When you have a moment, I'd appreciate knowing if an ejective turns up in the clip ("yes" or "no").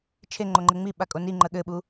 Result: yes